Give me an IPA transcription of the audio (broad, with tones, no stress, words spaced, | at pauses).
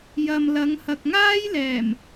jɐ˨mlɐ˨˧ŋhɐ˨k̚ŋaː˥j lɛː˨˩m